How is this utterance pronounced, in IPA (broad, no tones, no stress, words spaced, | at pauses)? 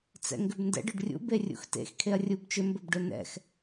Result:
t͡sɛ̰ŋɡʏbndɛ̰ɖ ɵɖrʲṵ berʲṵxtḛx kʰeɐ̯rʲubt͡ʃʏ mbɵbɖɵnɛ̰x